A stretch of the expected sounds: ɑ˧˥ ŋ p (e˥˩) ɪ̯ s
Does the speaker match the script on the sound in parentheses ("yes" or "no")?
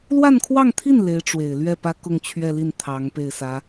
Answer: yes